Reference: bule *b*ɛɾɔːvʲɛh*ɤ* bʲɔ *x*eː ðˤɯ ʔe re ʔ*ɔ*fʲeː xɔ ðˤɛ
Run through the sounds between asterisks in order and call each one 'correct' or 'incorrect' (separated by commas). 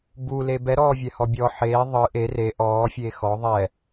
correct, incorrect, incorrect, incorrect